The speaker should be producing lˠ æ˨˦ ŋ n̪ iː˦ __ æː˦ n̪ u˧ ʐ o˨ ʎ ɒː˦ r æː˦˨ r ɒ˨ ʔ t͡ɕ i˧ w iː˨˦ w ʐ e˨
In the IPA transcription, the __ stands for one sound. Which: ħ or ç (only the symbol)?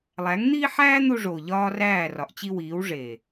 ħ